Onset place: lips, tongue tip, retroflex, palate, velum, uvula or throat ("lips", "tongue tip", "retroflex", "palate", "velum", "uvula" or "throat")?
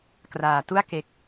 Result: velum